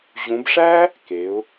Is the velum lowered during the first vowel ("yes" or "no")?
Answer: yes